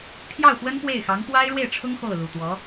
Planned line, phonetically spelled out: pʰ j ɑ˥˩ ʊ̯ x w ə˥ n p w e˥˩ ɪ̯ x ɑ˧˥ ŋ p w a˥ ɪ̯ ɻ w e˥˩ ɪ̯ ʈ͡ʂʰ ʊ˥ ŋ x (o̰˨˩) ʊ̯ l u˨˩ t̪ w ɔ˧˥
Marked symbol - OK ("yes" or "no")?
no